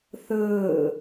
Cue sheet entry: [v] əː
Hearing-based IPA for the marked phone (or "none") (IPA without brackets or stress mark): θ